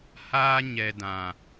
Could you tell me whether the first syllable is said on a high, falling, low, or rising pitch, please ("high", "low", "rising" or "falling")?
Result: high